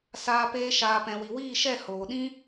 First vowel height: low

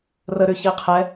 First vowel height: mid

